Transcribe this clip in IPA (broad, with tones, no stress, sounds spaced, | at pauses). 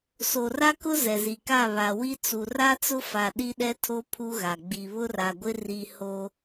s o˨ r a˦ k ʊ˦ z ɛ˨ z i˨ k a˦˨ β a˨ w i˦ t͡s u˨ r a˦ t͡s ʊ˦ f a˨ ɗ i˦ ɗ ɛ˦ tʰ o˦ pʰ u˦ ɣ a˨ ɡ͡b i˨ β ʊ˦ r a˨ ɡʷ ɪ˦ r i˦ h o˦